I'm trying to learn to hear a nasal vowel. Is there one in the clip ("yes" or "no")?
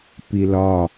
no